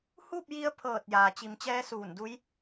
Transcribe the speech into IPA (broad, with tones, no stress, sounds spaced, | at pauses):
h uː˥˨ p̚ j i˧ ə̯ pʰ ɤː˧˩ t̚ j aː˩ t͡ɕ i˩˧ m t͡ɕ ɛː˧˥ s uː˧˩ n d u˧˥ j